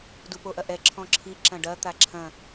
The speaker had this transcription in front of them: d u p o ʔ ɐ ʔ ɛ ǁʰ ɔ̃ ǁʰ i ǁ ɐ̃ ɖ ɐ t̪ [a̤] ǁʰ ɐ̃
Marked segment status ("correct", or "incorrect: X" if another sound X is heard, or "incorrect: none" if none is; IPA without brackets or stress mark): incorrect: a